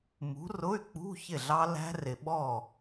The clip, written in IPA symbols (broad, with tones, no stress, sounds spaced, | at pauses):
m ṳ˨˥ r ʊ˧˥˧ y̯ k͡p ṳ˧˥˧ ç ɪ˥˩ ɮ ɑ˦˥ l æ̤˦˥ r ɪ˨ ɓ ɔ˥˩